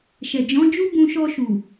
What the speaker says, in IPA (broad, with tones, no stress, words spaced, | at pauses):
ʃɛ˨d͡ʒɔ̃˨˦d͡ʒu˦ bũ˧ʃɔ˧ʃu˨